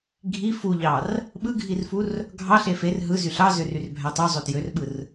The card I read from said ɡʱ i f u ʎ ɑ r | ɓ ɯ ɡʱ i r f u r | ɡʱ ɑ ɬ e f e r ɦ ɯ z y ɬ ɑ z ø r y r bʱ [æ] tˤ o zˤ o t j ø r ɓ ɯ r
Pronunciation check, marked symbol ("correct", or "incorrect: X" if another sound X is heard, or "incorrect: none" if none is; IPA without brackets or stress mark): correct